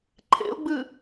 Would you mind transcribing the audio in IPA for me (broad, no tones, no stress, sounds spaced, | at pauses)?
ǃʰ ḛ ʊ̯ ɡ͡b ɨː